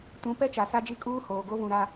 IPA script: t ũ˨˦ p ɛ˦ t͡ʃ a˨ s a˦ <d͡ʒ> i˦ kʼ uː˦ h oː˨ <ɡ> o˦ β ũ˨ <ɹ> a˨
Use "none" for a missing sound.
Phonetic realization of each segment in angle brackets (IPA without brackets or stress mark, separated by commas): d͡ʒ, ɡ, ɾ